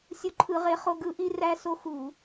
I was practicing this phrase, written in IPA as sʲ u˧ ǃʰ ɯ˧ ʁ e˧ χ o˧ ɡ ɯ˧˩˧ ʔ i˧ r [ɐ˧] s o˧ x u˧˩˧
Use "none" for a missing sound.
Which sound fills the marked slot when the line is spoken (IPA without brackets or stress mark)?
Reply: æ˧